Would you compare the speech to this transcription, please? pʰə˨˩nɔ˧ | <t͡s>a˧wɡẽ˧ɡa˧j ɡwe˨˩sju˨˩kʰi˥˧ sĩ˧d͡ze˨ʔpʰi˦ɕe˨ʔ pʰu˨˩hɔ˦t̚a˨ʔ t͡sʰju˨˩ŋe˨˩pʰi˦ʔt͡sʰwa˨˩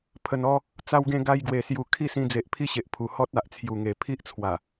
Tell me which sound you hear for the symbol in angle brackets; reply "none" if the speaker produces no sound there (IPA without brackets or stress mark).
t͡s